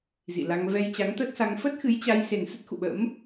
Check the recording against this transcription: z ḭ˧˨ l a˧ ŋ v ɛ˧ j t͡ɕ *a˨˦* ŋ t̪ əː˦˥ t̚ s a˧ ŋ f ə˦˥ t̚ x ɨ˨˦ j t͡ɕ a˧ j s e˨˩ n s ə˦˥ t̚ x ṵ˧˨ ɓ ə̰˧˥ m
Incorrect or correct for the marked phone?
correct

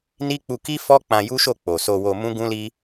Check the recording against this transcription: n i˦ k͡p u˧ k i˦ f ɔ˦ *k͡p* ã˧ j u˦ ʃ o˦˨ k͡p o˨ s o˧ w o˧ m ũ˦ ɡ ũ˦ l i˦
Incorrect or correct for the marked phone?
correct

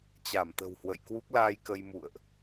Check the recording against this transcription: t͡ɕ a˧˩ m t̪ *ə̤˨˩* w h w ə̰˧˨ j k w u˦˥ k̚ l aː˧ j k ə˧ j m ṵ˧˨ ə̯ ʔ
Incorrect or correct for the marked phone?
correct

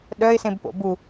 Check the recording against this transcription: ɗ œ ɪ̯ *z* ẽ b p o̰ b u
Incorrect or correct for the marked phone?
incorrect: s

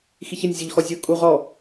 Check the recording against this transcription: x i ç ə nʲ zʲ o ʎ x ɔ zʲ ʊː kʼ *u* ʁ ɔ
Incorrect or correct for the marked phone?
correct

